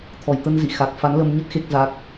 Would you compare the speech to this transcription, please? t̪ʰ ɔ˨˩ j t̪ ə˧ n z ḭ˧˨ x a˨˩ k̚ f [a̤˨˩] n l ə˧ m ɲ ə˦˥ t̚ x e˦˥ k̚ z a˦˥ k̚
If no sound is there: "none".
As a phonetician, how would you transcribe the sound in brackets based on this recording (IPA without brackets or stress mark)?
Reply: a˨˦